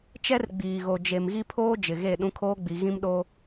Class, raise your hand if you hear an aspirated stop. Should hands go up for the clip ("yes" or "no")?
yes